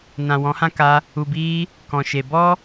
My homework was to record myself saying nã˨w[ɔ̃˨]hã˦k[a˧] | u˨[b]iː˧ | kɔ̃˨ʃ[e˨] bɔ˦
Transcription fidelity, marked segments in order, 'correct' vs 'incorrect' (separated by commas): incorrect, correct, correct, correct